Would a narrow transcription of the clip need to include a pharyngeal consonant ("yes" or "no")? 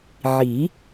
yes